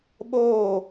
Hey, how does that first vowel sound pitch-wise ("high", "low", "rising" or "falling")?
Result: falling